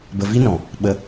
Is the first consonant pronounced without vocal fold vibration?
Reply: no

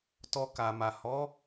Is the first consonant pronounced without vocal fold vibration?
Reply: yes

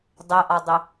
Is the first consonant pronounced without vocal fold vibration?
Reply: no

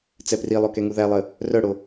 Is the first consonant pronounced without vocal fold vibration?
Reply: yes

